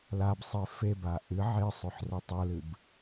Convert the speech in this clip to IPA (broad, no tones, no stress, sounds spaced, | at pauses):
l a b sˤ e f e b a ʔ ɨ ʕ e sˤ ʉ ħ r ɐ tˤ o l ɨ b